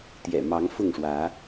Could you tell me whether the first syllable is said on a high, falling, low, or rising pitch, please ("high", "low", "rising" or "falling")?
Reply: low